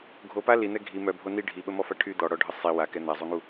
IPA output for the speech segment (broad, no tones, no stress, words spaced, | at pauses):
ɡʱopa lin̪ɛ ɡʱi mœbʱo ni ɖʱiɓəmɔfa ʈʰy d̪ɔɽɔɖʱə sˤi wakɛ n̪azˤuŋu